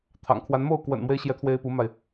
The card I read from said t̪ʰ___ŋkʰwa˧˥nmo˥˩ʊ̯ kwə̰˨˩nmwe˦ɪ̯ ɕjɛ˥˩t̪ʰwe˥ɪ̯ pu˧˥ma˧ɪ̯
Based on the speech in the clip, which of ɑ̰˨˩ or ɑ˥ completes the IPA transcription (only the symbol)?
ɑ̰˨˩